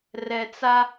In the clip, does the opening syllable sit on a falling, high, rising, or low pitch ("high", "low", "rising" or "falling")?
low